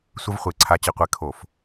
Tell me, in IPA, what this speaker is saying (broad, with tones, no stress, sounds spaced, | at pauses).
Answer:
sʷ ə˦˥ v χʷ e˧˩˧ ǀʰ a˧ t͡ɕ ɘ˧ qʷ ɛ˧ kʰ o˧˩˧ f